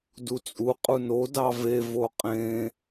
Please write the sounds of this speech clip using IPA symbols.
d u t͡sʼ u qʼ u n o d ɑ v e v o qʼ ẽ

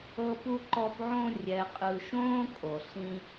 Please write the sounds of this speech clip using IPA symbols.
ɤ˦ p u˦ ǃ ɔ˦ p ʕ õ˥ rʲ ɛ˨ qʼ ɯ˨ ʃ õː˦ kʼ o˩ ɬ ĩ˦

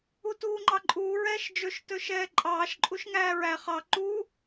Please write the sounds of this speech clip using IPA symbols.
u t uː ŋ͡ǃ ɑ ǃʼ uː ɹ ɛː ʃ d͡ʒ ɵ ʃ t ɵː ʃ ɛː ǃʼ ɑː ʃ ǃʼ u ʃ ŋ æː ɹ æ χ ɑ ǃ uː

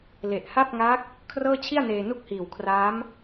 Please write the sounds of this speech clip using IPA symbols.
l e˨˩ ʔ h a˥˩ p̚ ŋ a˦˥ k̚ | kʰ r ɤː˥˩ t͡ɕʰ i˥˩ a̯ n eː˧ n u˥˩ k̚ h iː˨˩ w kʰ r aː˦˥ m

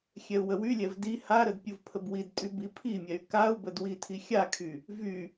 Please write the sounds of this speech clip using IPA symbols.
xʲ ɛ u̯ w ə w y lʲ ɛ v d i h a ɾ ə d pʲ u v pʰ ə b w i d tʼ y b i pʰ i mʲ ɛ y̯ k a u̯ b ə d w i tʰ i xʲ a kʰ y | v y

